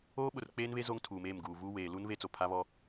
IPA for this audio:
oː˦ ɓ ʊ˨ r k͡p eː˦ n β e˦ z o˦ ŋ tʰ uː˨ m eː˦˨ m ɡ uː˨ v uː˦ w eː˨ l u˦ n β e˦ t͡s o˨ pʰ a˦ β ɔ˦

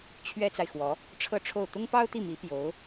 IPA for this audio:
t͡ɕʰ ɥ ɛ˥ t͡s a˨ ɪ̯ x w ɔ˧˥ | ʈ͡ʂʰ ɤ˥˧ ʈ͡ʂʰ o˥˩ ʊ̯ t̪ ʊ˥ ŋ p ɑ˥ ʊ̯ t̪ i˥˩ m i˧˥ p j o˧˥ ʊ̯

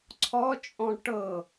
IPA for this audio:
ǀʰ ɔ t͡ʃʼ ɔ̃ ʈ ɤ

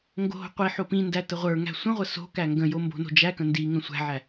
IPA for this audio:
ŋ ɡ o̤ ɦ o̤ qʷ i ħ o p ĩ n d æ t ə ʁʷ ə˞ ŋ æ̤ sʷ ə̃ ʁʷ ə s o̤ k æ ŋ ɡ ə̃ j o m b o̤ n o̤ d͡ʒ æ k ə̃ n d i ŋ ə̃ sʷ æ̤ ʕ æ

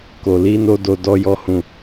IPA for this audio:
k o˨ l i˧ n o˧ d o˧ d ɔ˦ j ɔ˦ h ũ˦˨

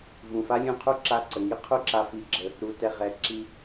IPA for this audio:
v ũ˩ f a˥ lʲ ũ˧ qʰ u˥ ǁ a˧ ǀ ə˩ ŋ i˥ qʰ u˥ ǁ a˧ f i˧ ɡ͡ǁ ə˧ | ɾ u˩ t ɛ˩ ʁ ɛ˩ ǁ i˧

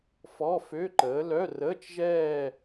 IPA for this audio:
f ɔ˧˥˧ f ø˧˥˧ ǃ əː˨˥ l œ˧˥˧ r əː˧˥˧ t͡ʃ ʒ ɛː˥˧

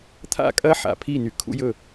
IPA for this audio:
t̪ʰ a̰˦˨ kʼ ɐ˦ ħ a̰˨ pʰ i˦˨ n y˨ kʰ ṵ˦ j ɵ˦˨

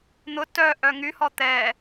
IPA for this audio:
n̪ ʊ t œ ʔ œ ŋ y h ɔ t̪ ɛː

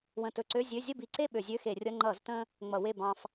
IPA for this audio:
w ə̃˧˩ t ɵ˧ ǀ ø˧˥˧ zʲ ø˧˥˧ zʲ ə˥˨ b i˧˩ ǀ e˥˨ ɓ ø˧˩˧ zʲ ø˧˥˧ x e˧˩˧ rʲ ʌ˧˥˧ ŋ͡ǃ ʌ˧˩˧ z t ə̃˧ | ŋ͡m ʌ˧˩˧ w e˥˨ b ɑ̃˧ f

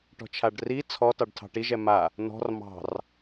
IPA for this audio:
ʈ ɔ̤ t͡ʃʰ a ɖ r i t͡sʰ ɔ t ɑ ɖ tʰ ɑ̤ ʈ i ʒ ɛ m a | n ɔ̤ r m ɑ̤ r

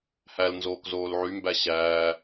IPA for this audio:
h æ l n z oː k z oː l ʕ y m b æ ɕ æː

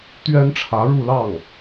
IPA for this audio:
t̪ ɥ ɛ˥ n ʈ͡ʂʰ ä˧˥ ɻ u˥˧ l ɑ˥˩ ŋ

